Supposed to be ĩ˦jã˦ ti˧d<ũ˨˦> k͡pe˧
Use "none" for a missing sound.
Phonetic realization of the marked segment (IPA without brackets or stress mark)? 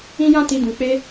ũ˨